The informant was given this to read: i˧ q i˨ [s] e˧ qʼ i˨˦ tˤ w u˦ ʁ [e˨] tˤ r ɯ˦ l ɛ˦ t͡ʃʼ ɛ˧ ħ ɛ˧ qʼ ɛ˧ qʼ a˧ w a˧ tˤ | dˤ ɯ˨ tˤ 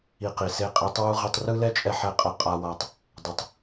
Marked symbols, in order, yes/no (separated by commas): yes, no